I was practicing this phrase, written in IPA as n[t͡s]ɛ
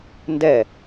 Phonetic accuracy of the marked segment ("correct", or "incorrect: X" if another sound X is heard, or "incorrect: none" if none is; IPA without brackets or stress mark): incorrect: d